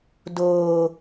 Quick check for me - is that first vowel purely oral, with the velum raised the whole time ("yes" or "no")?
yes